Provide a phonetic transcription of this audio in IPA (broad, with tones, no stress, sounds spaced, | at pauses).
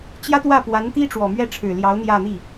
t͡ɕ j ä˥ t̪ w ä˥˩ p w a˧˥ n t̪ i˥ ʈ͡ʂ w ɔ˨˩ m ɥ ɛ˥˩ ʈ͡ʂʰ ɻ̩˨˩ l j ɑ˧˥ ʊ̯ n̪ j ä˥˧ n̪ i˥˩